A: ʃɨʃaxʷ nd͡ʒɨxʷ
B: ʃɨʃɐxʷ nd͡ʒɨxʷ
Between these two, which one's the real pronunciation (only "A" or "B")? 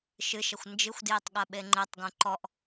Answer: B